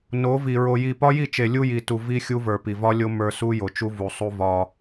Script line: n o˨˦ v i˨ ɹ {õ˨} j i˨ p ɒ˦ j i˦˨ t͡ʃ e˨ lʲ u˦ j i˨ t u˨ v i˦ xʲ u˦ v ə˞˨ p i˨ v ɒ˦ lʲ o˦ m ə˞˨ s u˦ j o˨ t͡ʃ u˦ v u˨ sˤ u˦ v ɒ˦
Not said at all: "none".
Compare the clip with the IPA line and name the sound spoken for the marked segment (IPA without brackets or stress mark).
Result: o˨